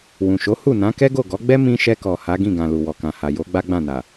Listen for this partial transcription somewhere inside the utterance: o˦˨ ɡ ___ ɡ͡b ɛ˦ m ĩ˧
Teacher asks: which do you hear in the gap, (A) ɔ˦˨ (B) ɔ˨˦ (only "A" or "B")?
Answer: B